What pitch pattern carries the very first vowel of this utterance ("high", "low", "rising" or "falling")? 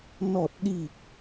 low